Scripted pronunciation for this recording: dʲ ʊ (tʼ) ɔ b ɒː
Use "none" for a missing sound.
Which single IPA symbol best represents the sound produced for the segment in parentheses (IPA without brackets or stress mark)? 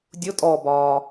tʼ